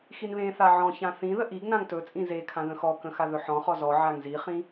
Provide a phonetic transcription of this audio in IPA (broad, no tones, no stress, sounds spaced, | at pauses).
x i n β ẽ θ a ʕ ɔ̃ ç ã θ ĩ ð ə ʔ i ɡ n ã ŋ t ɵ t͡sʼ ĩ z e kʰ ã ð ə̃ x ɔ k ə̃ x a ð ɵ ħ ɔ̃ χ ɔ z ɔ ʕ a ŋ z i χ ĩ